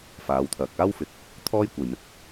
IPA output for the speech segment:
faː˨˧wt̪ʰɐ˨k̚ aː˥wfɪ˨˥k̚ | t̪ʰɔː˥jkʷɐ˨jmɪ˨˥k̚

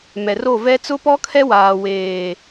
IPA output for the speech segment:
mɛ˨ro˦˨ vɛ˦ t͡sʊ˦pɔ˦kʰɛ˦ waː˨weː˨

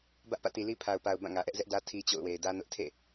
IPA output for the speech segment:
bä˦ʔpä̰˦˨ti˨ li˦pʰa˨ʊ̯pa˨ʊ̯ bã˦˨ŋä˨ʔɛ˦ʔ zɛ˦ʔdä˦ tʰi˦t͡ɕo̰˦˨ʊ̯we˨ɪ̯ dä˦nʊ˦ʔ tʰḛ˦˨

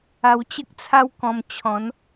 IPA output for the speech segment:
a˧wt͡ɕə˦k̚t͡sʰa˦w kɔ̃˧mt͡ɕʰɔ̃˨˦n

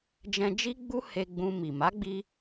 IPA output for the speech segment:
d͡ʒɛ̃˧d͡ʒi˦ɡ͡bu˦ he˧ɡ͡bũ˧ mi˨ ma˨˦ɡ͡bi˧

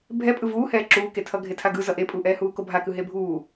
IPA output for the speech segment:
bʱɛpʼɯ vuːhɛː ǁuːketʰʌ ɡʱetʰaɡɯ zʌʔepʼuːʔɛː huːkobʱakɯ ɦebʱuː

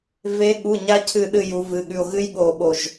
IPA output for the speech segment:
ve˨˦ɠu˩˧˩ ɲa˥cʰɨ˦˨ɗɨ˦˨ ju˨˦vɨ˩˧˩ɠʉ˦˨o̯ ɣɨ˥j ɠo˦˨ɓo˦˨ʒ

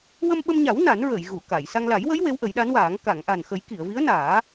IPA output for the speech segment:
wə˧mɓə˧mɲa˨˩˦w na˨˩˦nɹəː˨˩˨jɣu˨˩˨ ka˨˩˨j sa˧ŋ la˨˩˦jwə˧˥j we˧˥wʔə˨˩˦jɗa˧˥nwaː˨˩˦ŋ ka˨˩˨ŋʔa˨˩nxə˨˩˦j ki˨˩˨ə̯vi˧˥ə̯naː˨˩˦

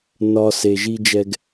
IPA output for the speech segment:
nɒ˧ se˧ʒi˥d͡ʒɛ˥ɡ

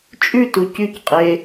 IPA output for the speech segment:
t͡ʃʼʉtu cycqʼe

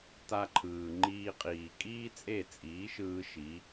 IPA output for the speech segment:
ta˧ǃʰɯː˩ ŋ͡ǃiː˧ qʼiː˩ kʼiː˥t͡sʼe˥˩t͡sʼiː˩˥ʃɯː˧ ʃi˩˥

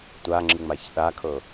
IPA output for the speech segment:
tʷaŋ͡ǁɯŋ͡maç ɗakʰɤ

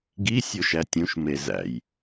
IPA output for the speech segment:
ɡi sʲoʃætʲũʃ mezæ̰j

